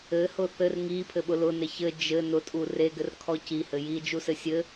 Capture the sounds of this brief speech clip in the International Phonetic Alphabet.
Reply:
ɘ h ʊ θ ɘ r ŋ i pʰ ɘ ɓ ʊ l ʊ n e ç ɘ d͡ʒ ɘ n ʊ tʼ u r e ɡ ɘ r kʰ ɔ c i h ɘ j i d͡ʒ u s ɘ sʲ ɘ

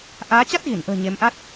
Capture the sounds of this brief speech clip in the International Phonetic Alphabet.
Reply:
ʔ aː˨˦ t͡ɕ a˦˥ t̚ ɣ i˧˩ n ʔ ə̤ː˨˩ ɲ e˨˦ m ʔ a˦˥ t̚

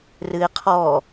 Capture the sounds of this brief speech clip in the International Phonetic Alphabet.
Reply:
r ɨ ɪ̯ qʰ ɔ

